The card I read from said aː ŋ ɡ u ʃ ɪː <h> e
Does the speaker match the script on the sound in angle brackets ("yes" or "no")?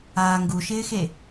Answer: no